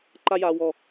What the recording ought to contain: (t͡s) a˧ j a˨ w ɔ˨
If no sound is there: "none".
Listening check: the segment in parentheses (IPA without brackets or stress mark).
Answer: ǃ